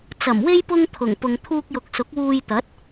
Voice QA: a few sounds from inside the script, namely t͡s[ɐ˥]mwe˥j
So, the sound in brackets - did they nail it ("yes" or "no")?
no